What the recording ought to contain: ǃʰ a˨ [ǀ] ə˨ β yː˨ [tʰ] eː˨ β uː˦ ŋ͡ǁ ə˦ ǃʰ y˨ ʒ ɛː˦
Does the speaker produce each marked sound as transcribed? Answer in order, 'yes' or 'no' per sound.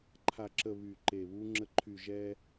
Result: no, no

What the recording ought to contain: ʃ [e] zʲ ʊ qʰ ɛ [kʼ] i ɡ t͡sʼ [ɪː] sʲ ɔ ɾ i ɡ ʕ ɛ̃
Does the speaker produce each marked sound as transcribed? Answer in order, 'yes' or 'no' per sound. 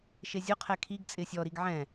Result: yes, no, yes

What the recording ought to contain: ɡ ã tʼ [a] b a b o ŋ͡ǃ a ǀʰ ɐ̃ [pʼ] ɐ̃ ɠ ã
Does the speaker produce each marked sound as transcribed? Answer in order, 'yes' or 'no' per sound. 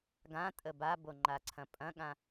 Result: no, yes

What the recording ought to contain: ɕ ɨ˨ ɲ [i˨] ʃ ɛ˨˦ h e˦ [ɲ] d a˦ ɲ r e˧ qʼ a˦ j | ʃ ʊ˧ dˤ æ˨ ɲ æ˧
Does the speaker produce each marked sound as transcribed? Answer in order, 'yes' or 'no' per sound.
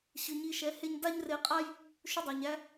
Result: no, yes

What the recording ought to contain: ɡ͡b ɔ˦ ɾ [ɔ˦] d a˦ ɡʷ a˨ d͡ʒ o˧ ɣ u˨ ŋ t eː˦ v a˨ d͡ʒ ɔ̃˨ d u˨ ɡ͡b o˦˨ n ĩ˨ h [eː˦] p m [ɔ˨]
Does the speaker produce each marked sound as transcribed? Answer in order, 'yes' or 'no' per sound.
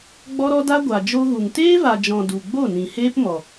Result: yes, yes, yes

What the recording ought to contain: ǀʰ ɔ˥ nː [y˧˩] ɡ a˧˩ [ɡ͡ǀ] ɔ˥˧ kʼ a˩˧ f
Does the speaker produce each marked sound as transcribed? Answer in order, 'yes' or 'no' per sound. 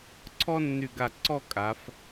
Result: yes, no

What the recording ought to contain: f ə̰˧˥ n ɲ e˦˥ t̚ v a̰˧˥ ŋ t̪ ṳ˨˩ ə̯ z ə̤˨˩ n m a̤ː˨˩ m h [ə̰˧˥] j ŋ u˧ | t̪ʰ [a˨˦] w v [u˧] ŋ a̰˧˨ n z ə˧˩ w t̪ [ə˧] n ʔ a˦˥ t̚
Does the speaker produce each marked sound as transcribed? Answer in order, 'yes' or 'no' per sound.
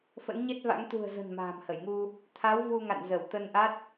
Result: no, yes, yes, yes

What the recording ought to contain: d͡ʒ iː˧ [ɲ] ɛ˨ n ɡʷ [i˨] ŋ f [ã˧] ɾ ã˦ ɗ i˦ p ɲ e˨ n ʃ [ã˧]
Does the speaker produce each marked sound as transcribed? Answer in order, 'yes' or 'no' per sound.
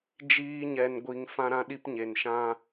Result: yes, yes, no, yes

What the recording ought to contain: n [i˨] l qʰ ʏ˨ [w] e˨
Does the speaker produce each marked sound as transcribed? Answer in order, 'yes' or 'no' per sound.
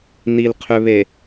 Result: yes, no

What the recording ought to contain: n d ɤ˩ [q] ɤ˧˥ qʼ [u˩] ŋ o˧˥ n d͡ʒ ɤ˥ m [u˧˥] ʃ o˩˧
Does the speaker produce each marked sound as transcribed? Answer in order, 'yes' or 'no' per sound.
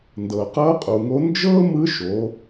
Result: yes, yes, no

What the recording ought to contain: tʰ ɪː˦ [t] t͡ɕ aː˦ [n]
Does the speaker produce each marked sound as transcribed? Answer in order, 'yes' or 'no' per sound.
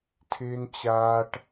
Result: no, no

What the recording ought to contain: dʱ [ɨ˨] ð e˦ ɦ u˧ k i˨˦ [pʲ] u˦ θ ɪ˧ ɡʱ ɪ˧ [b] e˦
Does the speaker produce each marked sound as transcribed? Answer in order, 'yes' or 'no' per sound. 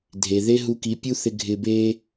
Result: no, yes, yes

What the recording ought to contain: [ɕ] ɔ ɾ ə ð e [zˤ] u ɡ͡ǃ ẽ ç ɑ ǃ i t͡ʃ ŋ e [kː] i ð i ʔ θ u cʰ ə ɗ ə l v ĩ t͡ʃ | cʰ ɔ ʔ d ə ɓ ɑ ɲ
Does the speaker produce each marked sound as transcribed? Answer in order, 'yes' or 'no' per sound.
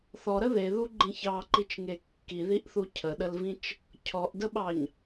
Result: no, no, yes

